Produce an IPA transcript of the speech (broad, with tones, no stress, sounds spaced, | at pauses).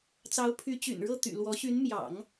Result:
t͡s ɑ˧˥ ʊ̯ pʰ y˧˥ t͡ɕ y̰˨˩ n ɻ ɤ˥˩ t̪ y̰˨˩ l w ɔ˧˥ ɕ y˧˥ n m j ɑ̰˨˩˦ ŋ